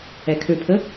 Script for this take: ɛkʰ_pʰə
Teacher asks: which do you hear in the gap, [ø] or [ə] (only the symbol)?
ø